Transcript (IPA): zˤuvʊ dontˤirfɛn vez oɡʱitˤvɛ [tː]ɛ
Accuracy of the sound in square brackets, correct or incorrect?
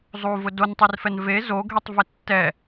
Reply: correct